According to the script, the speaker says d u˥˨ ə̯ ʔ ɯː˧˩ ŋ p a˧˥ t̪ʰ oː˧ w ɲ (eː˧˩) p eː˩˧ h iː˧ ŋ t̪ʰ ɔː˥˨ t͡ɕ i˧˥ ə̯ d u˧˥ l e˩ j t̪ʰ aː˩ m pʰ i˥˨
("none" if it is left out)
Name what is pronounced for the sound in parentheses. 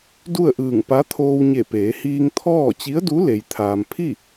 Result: e˧˩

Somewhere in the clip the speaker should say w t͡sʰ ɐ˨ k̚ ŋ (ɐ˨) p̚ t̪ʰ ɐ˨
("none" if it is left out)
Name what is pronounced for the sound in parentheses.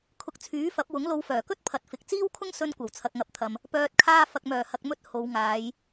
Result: ɐ˨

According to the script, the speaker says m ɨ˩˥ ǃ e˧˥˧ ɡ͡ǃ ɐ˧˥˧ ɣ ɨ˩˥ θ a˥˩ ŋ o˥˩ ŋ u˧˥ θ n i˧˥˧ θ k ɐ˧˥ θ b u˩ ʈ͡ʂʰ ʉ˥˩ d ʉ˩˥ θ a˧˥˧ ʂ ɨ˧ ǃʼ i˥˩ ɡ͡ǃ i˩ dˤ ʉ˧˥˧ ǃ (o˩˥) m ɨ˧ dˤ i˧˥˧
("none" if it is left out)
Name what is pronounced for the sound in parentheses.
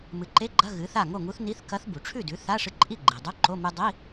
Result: o˧˥˧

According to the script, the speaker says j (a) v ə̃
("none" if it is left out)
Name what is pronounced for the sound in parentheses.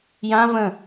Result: ã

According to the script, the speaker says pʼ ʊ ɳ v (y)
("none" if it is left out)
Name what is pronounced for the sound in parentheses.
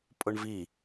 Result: i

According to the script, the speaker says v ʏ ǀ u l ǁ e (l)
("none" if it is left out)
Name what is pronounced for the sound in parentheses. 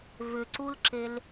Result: l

